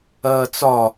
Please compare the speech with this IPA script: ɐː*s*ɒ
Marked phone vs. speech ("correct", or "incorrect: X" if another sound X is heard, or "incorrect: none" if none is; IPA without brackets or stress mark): incorrect: t͡s